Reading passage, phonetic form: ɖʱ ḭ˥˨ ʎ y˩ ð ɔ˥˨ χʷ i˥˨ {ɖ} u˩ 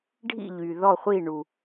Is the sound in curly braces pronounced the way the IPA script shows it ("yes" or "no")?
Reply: no